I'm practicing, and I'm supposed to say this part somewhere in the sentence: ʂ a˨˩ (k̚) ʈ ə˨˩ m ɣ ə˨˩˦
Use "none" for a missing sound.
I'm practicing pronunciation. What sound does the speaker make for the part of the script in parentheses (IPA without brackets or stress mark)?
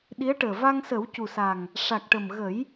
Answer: k̚